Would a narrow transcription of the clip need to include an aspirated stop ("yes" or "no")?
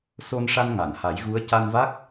no